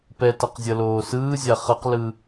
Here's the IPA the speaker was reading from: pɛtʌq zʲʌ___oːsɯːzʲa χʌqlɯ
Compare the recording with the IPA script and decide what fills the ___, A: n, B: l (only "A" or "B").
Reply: B